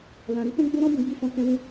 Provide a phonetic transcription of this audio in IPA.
l ã˧ ɾ i˦ t ɛ̃˦ ɡ͡b o˦ ɾ ɔ̃˦ b ũ˧ ɡ͡b i˦ f ɔ̃˦ k ɛ̃˧ w ũ˧

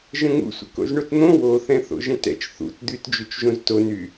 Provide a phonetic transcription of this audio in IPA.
ʒ ə̃ ŋ ṵ sʷ ə̰ k o̰ z ɳ o t n̪ õ w o θ ɛ̃ θ o̰ ʒ ɛ̃ t ɛ̰ t͡ʃ θ ṵ t d̪ y t d͡ʒ y t͡ʃ ʒ õ z t o n y

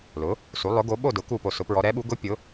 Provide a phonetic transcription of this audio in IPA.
l ʊ˩˥ | s u˩˥ lˠ ʊ˩˥ ɡ o˩˥ ɓ o˥˨ d ʊ˩˥ k u˥˨ p o˥˨ s ʊ˧˥ p ɹ ɔ˧˥ ɾ ɛ˩˥ ɓ u˩˥ ɡ ʊ˧˥ pʲ ʊ˩˥

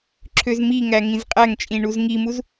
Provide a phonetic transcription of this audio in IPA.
ǁʰ ø z m i ŋ æ ŋ ĩ z qʼ æ ŋ t͡ʃʼ ĩ ɳ u z ŋ i m u z

